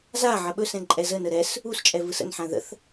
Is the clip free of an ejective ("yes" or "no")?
no